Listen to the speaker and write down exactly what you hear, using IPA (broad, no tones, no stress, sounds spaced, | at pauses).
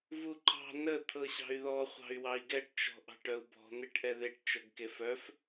v u ǃ ɑ̤ n ə t̪ʰ ɤ ɕ ɑ̤ y̯ ð ɔ χʷ ɑ̤ y̯ w ɑ i̯ ɡ ɛ ʈ t͡ʃ ɔ̤ ʔ ɑ̤ ʈ œ u̯ b ɔ̤ n̪ e ʈ ʔ ɛ ð e ʈ t͡ʃ ɤ ɡ k e f œ f